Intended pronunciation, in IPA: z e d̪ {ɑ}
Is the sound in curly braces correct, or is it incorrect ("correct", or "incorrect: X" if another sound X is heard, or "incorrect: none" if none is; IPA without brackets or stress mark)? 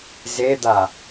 incorrect: a